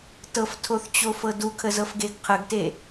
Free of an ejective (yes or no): yes